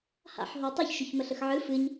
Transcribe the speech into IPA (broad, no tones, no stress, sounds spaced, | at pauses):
h a̰ ħ ɦ o tˤ ɨ ç ʃ ʏ ç m ə ɬ ə x ʕ ɨ f ɨ ɲ